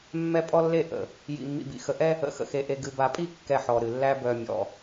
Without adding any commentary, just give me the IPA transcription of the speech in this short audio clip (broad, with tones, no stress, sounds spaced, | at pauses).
mː ɛ˦ pʼ ɔ˦ lː e˦˨ ʔ ə̰˨ | j ḭ˨ mː ḭ˨ b ḭ˨ x ə˨ ʔ ɛ˦ | ə̰˨ x ə̰˨ x e˨ ʔ e˨ ɡ ɨ˨ b a˨ pʼ i˦˨ kː ɛ˦˨ ħ ɔ˨ ɾ ɨ˨ lː æ˦ b œ˨ mʲ ɔ̰˨